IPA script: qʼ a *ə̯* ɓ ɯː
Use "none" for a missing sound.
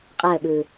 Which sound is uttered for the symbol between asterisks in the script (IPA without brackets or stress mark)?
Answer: ə̯